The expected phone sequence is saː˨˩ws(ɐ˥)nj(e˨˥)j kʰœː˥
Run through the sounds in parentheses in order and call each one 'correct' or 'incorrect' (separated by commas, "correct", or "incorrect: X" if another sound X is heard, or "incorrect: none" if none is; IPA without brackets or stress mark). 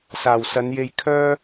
incorrect: ɐ˨˧, incorrect: e˧